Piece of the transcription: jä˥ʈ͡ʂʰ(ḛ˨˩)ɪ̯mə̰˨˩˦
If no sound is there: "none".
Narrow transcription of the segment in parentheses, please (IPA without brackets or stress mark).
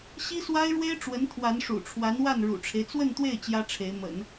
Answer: e˧˥